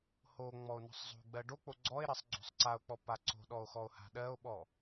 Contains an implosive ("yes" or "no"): yes